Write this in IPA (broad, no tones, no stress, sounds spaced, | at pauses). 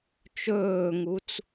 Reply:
t͡ʃ ɵː ŋ u t͡s